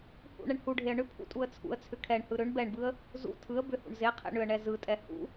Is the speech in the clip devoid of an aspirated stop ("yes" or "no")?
no